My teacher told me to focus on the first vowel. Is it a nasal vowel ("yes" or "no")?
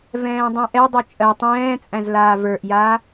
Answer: yes